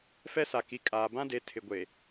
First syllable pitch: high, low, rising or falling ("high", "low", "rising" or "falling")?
high